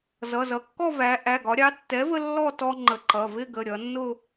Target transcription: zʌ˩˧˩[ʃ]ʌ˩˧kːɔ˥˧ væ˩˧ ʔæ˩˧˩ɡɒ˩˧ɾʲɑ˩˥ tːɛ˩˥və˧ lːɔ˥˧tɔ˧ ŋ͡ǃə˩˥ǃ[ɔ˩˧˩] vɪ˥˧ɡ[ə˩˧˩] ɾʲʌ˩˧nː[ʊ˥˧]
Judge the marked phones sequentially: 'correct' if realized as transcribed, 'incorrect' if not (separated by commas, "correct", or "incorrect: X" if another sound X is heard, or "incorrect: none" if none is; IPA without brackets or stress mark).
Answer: incorrect: z, incorrect: ʌ˩˧˩, correct, correct